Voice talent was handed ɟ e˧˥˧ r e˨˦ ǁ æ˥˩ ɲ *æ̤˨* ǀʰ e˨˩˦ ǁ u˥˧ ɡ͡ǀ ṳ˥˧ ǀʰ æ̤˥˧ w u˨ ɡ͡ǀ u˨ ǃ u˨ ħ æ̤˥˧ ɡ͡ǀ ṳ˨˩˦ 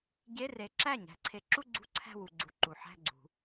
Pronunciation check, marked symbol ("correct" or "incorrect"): incorrect